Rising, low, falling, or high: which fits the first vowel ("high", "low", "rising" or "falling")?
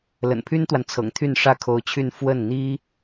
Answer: low